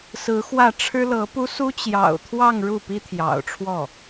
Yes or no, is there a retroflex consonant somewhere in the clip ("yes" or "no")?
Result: yes